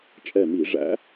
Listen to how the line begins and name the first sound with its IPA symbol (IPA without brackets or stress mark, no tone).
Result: t͡ʃʼ